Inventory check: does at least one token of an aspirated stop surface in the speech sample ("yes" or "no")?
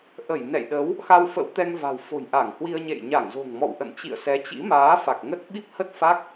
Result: no